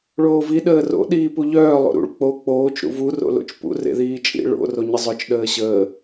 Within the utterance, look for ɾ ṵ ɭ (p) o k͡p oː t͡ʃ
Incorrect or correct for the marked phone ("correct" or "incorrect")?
incorrect